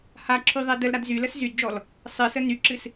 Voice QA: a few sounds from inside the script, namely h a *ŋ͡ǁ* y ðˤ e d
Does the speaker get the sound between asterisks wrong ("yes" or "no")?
yes